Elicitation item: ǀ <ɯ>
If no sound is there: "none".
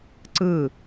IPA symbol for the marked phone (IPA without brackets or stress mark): ɯ